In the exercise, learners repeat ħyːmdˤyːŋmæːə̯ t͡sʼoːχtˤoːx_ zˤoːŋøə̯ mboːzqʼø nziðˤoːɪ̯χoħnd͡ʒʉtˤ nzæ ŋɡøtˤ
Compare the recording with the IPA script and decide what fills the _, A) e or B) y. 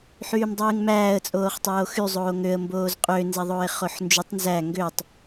B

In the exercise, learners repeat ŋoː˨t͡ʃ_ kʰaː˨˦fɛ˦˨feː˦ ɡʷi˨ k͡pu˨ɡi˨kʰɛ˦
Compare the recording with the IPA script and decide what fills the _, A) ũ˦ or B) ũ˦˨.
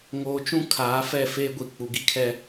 A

